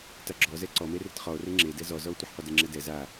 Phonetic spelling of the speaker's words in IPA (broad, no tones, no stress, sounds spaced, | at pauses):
t a ɡ͡ǁ ɔ z ɛ ǀ ɔ m e r ɪ t χ ɔ o̯ r e ŋ͡ǁ e d ɛ z ɔ z ɔ o̯ tʷ e ħ qʷ e d ɪ ŋ͡ǁ ɛ d ɛ z a